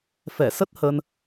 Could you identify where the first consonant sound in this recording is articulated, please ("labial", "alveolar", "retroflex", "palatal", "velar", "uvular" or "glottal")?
labial